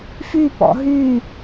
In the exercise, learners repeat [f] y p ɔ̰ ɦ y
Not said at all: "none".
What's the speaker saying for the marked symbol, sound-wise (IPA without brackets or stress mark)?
f